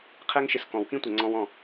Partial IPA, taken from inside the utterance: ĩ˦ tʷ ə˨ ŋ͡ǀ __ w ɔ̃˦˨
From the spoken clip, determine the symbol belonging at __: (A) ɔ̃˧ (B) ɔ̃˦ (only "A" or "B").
A